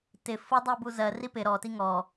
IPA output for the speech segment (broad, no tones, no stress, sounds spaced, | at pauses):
t ɪ f ʊ dˤ i b u z ɜ r i p ɪ ɾ ɔ t i ŋ ɔ